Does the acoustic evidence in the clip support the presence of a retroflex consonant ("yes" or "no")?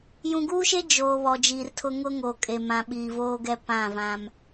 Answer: no